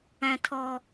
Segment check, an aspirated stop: present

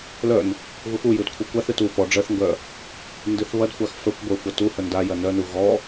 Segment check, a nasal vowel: absent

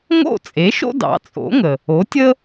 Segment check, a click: absent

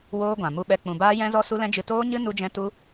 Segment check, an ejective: absent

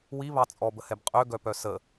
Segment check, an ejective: present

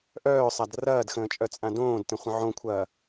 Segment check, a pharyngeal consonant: present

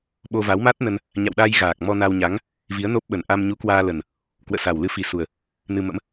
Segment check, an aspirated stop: absent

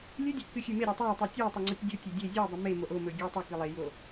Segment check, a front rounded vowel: absent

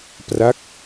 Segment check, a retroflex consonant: absent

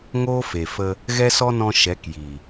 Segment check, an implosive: absent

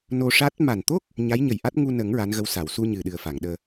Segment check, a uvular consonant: absent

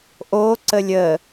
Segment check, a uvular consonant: absent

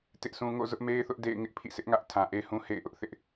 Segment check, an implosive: absent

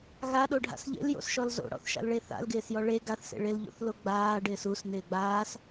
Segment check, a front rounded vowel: absent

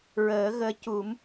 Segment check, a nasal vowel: absent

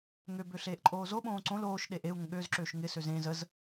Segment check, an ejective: present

